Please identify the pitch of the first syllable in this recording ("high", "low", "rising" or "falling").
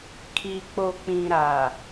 low